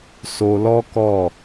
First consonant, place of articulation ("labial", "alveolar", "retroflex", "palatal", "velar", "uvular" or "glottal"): alveolar